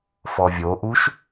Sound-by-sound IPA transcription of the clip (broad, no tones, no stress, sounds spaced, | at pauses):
f ɔ vʲ o ʔ u ʃ